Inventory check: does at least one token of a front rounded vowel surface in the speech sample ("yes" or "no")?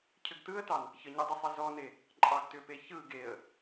yes